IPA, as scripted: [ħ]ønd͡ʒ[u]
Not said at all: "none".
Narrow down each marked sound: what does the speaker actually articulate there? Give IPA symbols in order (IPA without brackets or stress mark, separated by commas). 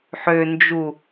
ħ, u